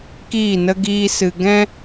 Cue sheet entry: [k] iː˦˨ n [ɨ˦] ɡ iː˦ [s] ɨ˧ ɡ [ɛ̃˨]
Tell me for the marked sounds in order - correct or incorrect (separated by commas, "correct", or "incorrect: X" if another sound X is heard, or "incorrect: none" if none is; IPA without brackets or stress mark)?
correct, incorrect: ə˦, correct, incorrect: ɛ̃˦